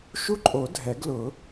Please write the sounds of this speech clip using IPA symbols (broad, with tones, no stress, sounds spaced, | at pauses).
ʃ u˦˥ ǃʼ o˨˩˦ dʱ ɛ˨˩˦ ɡ l ʊ˨˩˦